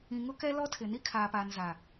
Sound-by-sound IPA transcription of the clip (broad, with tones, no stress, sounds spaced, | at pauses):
ĩ˨ ŋ ʊ˦ k ɛ˦ l ɔ˦ tʰ ɪ˨ n i˦ kʰ aː˨ p aː˨ n z a˨